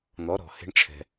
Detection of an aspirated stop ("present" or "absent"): present